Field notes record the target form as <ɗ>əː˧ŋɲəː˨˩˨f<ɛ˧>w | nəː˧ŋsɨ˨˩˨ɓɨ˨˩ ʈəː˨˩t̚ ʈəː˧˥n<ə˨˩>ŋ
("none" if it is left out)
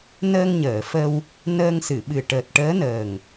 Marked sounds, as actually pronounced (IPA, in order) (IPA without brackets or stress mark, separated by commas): n, ə˧, əː˨˩